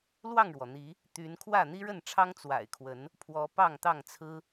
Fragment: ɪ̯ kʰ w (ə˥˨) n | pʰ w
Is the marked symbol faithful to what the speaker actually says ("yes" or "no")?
no